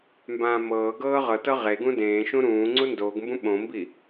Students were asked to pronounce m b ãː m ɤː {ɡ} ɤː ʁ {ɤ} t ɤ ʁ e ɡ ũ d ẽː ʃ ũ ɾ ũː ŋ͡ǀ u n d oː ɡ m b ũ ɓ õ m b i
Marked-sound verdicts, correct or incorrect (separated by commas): correct, correct